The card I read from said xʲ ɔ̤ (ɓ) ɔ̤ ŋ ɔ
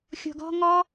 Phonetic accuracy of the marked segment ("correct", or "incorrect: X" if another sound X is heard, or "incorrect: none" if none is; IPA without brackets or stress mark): incorrect: ɡ